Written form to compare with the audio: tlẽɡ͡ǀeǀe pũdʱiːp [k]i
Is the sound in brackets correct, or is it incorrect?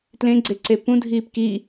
correct